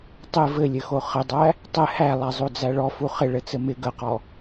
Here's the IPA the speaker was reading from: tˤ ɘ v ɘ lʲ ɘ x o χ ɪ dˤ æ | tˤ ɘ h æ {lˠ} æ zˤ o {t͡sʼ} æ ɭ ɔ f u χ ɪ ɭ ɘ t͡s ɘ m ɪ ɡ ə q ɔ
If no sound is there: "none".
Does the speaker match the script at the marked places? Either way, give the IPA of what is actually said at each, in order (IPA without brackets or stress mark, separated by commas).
lˠ, d͡z